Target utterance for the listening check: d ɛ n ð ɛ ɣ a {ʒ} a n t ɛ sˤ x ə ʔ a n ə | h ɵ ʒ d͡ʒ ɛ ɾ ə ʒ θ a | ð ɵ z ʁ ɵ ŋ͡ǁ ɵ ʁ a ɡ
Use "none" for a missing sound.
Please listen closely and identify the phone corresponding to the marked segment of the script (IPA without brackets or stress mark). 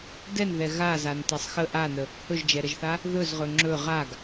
z